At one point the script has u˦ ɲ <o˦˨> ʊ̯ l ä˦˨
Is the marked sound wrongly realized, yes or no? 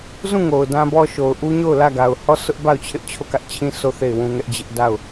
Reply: no